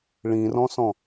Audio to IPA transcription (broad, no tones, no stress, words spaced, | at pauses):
ɭĩrɔ̃sɔ̃